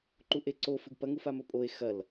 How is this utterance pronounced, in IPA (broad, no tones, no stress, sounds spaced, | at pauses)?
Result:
ǃ u ʔ e ǀ o f ɨ ɡ p ɐ ŋ u f a m ɵ pʼ o e̯ x ɐ l